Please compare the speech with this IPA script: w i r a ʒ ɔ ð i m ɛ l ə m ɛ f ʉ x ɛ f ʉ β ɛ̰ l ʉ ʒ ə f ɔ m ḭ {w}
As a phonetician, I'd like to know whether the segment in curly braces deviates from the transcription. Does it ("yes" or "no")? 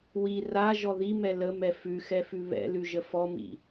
yes